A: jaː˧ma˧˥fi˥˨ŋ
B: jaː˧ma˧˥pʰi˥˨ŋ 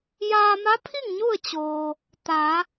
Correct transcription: B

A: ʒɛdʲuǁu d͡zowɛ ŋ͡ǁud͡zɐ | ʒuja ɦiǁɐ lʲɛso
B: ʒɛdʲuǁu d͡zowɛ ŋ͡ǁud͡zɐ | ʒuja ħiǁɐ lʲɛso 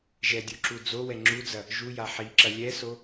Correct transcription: B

